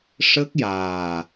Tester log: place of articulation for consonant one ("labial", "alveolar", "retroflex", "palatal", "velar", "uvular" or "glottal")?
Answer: retroflex